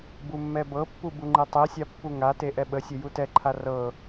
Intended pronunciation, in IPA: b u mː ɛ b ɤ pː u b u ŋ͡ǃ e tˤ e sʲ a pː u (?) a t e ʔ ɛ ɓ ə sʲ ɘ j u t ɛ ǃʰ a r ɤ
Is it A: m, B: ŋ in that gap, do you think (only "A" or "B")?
B